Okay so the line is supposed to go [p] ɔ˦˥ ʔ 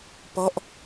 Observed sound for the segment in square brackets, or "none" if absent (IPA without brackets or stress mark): p